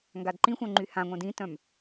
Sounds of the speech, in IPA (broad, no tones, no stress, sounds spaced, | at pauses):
ŋ ɡ a d ǃ ĩ xʷ œ̃ ŋ͡ǃ y h ã ŋʷ œ̃ d ĩ t œ̃ m